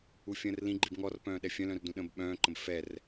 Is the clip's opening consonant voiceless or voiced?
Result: voiceless